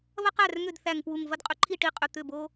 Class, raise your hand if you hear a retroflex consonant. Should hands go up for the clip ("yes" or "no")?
yes